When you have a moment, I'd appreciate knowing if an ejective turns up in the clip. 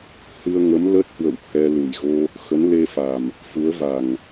no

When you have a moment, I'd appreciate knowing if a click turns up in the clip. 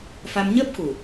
no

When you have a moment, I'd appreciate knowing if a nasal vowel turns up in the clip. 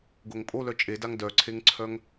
no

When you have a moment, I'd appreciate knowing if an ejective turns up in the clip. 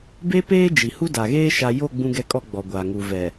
yes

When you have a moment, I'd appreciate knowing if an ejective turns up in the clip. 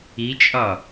yes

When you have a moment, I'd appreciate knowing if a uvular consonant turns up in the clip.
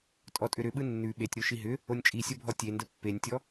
no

